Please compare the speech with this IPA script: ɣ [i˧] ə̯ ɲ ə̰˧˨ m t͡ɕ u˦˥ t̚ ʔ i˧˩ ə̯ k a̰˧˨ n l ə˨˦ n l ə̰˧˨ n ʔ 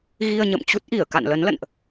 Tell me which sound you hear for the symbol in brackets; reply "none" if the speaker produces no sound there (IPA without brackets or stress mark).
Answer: i˧